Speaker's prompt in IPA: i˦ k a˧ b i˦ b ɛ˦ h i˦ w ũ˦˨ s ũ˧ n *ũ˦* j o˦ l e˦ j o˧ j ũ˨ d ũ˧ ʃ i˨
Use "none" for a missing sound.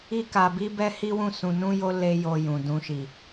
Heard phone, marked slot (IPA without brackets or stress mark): ũ˦